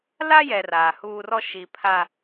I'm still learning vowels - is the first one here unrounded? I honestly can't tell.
yes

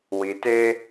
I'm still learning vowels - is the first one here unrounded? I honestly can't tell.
yes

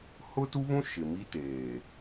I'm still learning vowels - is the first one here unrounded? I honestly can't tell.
no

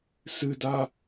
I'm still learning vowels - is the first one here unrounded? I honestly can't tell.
yes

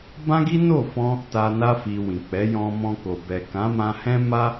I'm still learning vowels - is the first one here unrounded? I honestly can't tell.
yes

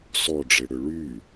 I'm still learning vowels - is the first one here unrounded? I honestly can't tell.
no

